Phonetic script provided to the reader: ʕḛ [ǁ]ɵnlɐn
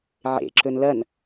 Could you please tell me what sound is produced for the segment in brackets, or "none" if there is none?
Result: ǁ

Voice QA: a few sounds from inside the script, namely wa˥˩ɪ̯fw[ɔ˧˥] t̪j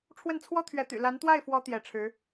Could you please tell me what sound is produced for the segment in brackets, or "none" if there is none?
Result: ɔ˧˥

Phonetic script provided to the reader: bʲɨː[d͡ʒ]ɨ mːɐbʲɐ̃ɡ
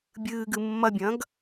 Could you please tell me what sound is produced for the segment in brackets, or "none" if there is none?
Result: ɡ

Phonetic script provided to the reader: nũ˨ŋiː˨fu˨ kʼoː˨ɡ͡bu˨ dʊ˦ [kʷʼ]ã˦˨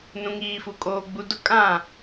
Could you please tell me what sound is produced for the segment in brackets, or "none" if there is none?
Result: kʼ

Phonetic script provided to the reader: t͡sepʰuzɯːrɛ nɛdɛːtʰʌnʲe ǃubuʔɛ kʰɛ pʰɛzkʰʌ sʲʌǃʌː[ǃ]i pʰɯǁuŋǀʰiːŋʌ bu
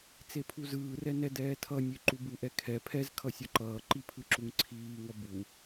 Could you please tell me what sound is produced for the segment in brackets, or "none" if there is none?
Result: ǃ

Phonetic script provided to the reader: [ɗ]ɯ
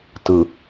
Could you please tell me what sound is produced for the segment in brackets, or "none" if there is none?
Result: t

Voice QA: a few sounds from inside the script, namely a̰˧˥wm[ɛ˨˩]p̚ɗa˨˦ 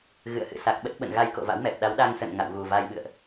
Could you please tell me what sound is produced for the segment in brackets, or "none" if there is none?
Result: ɛ˨˩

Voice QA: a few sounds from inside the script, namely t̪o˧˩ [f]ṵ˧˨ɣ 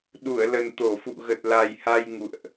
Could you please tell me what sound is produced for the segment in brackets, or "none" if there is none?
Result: f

